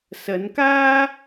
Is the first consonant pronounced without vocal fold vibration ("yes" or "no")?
yes